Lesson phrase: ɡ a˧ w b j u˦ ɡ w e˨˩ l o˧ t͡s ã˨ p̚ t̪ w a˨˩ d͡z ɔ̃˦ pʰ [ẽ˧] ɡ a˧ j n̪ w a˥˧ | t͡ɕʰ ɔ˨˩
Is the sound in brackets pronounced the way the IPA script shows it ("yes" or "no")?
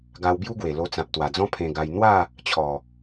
yes